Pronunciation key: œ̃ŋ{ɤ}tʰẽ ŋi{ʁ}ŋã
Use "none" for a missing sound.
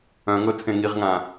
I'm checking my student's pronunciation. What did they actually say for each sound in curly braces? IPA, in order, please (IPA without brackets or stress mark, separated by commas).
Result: ɤ, ʁ